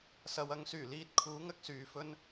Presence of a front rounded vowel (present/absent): present